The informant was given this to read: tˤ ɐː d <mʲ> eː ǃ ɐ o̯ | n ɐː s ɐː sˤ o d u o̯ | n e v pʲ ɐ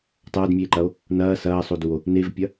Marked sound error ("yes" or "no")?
no